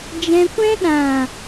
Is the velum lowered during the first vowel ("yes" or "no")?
yes